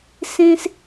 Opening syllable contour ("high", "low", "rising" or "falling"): high